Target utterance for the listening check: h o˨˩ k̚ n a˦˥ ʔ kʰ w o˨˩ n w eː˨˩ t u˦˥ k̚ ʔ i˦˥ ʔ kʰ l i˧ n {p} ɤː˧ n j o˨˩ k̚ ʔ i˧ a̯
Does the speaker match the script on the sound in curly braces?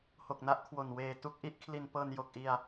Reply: yes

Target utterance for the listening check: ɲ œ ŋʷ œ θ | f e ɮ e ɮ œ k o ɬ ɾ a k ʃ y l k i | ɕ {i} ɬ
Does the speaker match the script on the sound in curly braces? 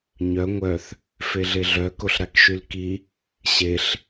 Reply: no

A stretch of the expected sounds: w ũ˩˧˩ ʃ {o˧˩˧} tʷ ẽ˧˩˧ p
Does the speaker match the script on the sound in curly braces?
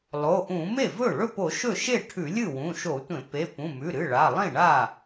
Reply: yes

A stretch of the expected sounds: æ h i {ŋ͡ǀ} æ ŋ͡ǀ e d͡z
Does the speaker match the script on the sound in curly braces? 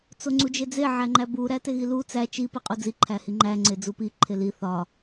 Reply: no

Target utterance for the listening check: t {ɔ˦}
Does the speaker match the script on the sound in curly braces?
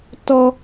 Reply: yes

